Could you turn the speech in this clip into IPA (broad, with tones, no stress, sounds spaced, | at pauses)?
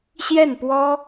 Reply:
ɕ j ɛ˥˩ n p w ɔ˥